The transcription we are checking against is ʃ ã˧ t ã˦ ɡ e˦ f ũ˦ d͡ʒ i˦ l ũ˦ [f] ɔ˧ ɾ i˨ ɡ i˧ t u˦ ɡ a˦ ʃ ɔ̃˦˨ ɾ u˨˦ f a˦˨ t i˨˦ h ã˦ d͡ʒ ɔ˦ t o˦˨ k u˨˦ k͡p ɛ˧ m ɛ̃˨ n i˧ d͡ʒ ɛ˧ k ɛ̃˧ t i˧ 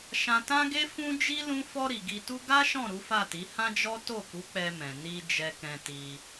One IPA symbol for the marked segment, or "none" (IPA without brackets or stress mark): f